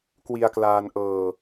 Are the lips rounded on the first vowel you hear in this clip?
no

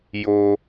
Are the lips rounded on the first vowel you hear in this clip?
yes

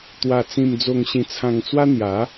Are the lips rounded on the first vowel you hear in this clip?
no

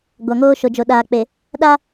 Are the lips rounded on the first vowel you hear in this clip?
no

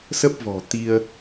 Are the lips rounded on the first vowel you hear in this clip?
no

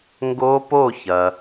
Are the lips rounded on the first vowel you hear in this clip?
yes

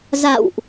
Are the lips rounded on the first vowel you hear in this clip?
no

